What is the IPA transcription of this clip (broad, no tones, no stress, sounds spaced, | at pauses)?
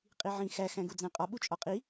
qʼ i ʕ ĩ x æ x æ̃ ɡ u d͡z æ̃ qʼ ɒ ɓ u t͡ʃʼ ɒ qʼ i